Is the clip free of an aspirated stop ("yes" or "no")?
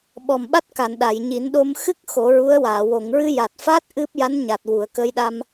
yes